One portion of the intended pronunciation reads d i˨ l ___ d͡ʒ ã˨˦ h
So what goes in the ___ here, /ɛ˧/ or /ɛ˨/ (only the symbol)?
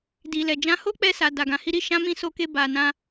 ɛ˨